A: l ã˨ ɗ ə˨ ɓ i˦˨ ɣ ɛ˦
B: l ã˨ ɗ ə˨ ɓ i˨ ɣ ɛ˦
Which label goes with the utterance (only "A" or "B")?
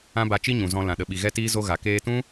B